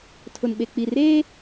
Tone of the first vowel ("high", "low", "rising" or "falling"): low